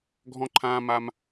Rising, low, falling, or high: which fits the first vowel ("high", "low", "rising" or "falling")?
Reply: high